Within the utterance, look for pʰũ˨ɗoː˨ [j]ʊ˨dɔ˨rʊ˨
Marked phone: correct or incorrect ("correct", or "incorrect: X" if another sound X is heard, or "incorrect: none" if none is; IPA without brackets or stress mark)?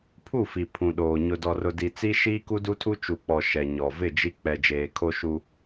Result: incorrect: ɲ